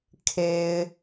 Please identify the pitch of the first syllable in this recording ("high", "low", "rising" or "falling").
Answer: low